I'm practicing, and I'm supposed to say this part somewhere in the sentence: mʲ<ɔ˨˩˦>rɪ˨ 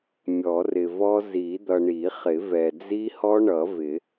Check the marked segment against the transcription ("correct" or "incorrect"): correct